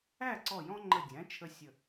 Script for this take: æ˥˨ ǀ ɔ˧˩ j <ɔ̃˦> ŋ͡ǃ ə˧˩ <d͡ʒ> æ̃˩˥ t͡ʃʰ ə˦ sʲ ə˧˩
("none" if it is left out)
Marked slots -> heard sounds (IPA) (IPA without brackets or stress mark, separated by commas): ɔ̃˦, dʲ